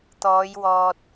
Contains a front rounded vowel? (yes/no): no